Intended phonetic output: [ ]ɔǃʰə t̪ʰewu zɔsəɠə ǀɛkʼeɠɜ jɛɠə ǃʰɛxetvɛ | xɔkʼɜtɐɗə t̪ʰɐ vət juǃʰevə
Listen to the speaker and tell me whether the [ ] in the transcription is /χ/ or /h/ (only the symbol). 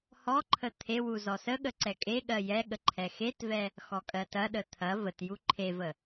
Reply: h